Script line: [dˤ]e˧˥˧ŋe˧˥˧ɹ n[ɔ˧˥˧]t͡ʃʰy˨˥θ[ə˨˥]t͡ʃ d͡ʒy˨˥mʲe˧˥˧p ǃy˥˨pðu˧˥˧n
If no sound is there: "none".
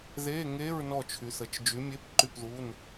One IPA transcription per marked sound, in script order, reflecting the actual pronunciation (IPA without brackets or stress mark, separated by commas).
ð, ɔ˥˨, ə˨˥